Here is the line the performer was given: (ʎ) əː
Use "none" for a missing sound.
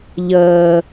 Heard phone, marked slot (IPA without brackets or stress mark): ʎ